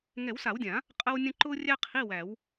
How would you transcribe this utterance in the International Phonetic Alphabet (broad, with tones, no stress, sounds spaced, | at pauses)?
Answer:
ŋ ɛ˨˩˦ w s a˨˩˦ w dʲ ã˨˩˦ | qʼ ə˥ w nʲ ə̃˥ ǃ ʊː˥ rʲ æ˥ qʰ i˧˥˧ w æ˨˩˦ w